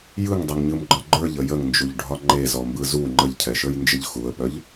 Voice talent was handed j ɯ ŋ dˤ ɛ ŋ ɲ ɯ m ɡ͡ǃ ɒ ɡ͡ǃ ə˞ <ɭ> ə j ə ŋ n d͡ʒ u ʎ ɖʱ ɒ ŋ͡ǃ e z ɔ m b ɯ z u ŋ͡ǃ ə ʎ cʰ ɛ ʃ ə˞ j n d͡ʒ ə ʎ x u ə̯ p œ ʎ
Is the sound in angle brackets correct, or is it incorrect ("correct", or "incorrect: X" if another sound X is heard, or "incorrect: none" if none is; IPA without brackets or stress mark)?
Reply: incorrect: ʎ